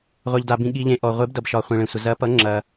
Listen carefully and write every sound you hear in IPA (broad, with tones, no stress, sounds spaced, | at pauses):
ʁʷ ɛ˩ ʎ d a˩ b ĩ˩ ɠ i˩ ʎ ẽ˩ ʔ ɔ˩ ʁʷ e˩˥ b d ʌ˩ b ʃ ɒ˩ χʷ ĩ˩ ɭ ẽ˩ sʷ ə˩ z ɐ˩˥ p ʌ˩˥ ŋ͡ǁ ɐ˩